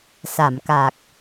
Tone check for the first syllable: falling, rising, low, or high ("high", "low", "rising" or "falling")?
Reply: low